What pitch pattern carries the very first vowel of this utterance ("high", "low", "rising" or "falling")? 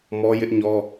high